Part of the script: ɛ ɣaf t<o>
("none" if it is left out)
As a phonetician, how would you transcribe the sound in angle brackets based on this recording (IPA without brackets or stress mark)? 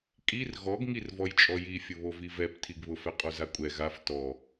ɔ